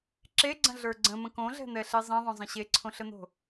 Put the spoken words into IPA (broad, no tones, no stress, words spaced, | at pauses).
ǁeɡ͡ǀə̃ɮə˞ ɡ͡ǀə̃mə̃ kõɮɛ̤n̪ɛɬe zˤẽðˤõzˤə̃ ɕeǀʰõɬən̪o̤